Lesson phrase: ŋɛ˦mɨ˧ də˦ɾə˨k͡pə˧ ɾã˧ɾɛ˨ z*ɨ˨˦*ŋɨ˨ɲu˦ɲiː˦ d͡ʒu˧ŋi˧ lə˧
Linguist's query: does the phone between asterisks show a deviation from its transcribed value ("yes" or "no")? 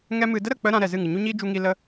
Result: yes